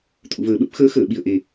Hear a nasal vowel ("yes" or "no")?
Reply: no